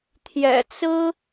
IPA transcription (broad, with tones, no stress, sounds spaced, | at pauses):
t̪ʰ j ɛ̰˨˩ t͡s ɹ̩˥